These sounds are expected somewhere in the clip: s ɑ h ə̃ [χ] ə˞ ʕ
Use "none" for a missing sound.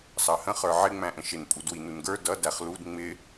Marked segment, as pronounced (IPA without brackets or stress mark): χ